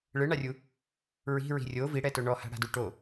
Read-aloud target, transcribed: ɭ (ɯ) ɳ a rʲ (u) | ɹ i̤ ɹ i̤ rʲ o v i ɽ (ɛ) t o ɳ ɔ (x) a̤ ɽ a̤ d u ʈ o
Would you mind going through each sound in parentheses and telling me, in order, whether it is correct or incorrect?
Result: correct, correct, correct, incorrect

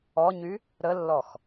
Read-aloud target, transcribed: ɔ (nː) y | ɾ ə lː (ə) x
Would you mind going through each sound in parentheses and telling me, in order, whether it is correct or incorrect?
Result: incorrect, incorrect

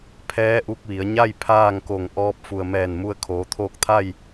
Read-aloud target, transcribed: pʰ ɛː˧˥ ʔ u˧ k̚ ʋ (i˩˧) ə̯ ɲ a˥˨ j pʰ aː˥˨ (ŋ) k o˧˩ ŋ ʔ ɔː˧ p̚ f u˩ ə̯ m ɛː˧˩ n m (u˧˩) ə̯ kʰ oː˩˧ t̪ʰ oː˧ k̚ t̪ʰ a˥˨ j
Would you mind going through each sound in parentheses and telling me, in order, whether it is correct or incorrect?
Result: correct, correct, incorrect

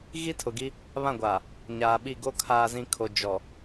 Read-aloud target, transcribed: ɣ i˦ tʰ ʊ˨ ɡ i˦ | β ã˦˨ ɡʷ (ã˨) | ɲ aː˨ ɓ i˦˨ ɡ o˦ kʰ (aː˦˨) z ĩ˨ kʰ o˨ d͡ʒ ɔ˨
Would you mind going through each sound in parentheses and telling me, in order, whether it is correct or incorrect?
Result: incorrect, incorrect

